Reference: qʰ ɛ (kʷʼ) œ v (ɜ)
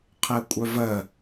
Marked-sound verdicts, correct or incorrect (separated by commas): correct, correct